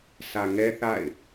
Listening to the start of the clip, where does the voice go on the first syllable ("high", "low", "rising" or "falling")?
low